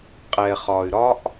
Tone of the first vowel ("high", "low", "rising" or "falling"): low